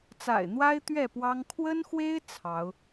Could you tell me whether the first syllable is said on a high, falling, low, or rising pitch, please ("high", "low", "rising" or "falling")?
low